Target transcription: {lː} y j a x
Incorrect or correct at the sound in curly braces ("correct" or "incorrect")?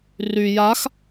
incorrect